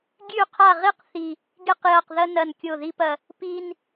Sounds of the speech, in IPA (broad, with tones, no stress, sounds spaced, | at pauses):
ɡʲ ʉ˦˨ qʰ a˦˨ ʁ i˥ q θ i˦˨ | ɡ e˥ q j ɐ˦˨ q ð ɐ˥ n ɐ˦˨ n kʲ o˦˨ ð i˥ p ɐ˦˨ | p i˥ n